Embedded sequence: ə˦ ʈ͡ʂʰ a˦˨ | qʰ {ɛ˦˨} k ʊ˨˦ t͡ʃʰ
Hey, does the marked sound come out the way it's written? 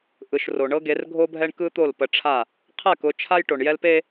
yes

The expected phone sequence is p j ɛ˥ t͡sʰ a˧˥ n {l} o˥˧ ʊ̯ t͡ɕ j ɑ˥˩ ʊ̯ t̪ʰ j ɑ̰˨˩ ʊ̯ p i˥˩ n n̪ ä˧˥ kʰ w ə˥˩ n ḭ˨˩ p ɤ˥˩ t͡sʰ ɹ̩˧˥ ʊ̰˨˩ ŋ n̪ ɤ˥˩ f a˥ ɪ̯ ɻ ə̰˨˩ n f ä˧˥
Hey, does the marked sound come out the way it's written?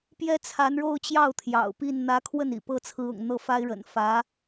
no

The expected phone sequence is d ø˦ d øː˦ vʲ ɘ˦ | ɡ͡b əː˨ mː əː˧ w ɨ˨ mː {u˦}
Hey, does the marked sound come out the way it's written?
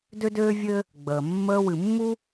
yes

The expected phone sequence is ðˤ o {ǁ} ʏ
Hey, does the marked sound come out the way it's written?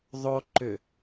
no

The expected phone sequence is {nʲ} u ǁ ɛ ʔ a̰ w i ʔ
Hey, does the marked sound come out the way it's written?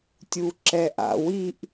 no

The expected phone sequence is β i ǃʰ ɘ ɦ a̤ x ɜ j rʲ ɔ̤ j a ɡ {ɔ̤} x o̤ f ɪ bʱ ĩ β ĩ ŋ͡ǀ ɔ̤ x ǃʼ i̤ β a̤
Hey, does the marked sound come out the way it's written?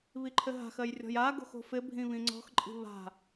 no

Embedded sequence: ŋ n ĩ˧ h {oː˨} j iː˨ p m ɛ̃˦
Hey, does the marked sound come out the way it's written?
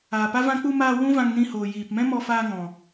yes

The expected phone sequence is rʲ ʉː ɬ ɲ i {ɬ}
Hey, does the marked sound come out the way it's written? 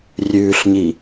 no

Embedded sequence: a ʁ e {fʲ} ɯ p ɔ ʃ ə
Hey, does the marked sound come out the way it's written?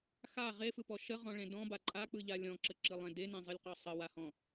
no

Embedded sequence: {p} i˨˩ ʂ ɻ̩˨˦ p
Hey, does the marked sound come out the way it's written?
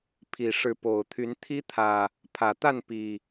no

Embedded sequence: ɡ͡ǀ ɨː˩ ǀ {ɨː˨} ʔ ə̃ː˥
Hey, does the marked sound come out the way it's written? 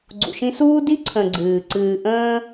yes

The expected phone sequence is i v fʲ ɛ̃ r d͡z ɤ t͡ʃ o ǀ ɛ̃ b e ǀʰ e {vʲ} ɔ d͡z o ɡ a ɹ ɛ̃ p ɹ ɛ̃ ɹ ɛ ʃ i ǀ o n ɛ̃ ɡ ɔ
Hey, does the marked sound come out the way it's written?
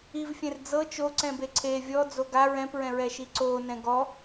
yes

